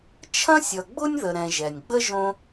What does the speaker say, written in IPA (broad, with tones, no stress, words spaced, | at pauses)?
t͡ʃʰɐ̃˥sʲʌ˨ɡ͡bʊ˥nʲ ðə˨ɾɛ̃˨ʒɛ˩nʲɡ͡bə˥ ʒõ˦